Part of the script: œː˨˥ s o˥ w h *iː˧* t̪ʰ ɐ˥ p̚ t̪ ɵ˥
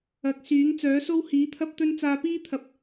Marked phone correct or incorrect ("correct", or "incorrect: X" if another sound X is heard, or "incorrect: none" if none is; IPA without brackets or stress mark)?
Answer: incorrect: iː˨˥